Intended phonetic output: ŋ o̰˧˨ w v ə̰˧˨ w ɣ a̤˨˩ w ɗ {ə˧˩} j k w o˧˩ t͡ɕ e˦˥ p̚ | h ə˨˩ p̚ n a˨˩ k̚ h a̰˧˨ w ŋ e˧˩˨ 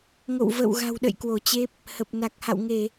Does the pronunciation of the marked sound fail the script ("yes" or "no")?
yes